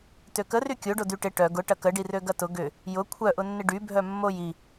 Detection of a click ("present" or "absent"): absent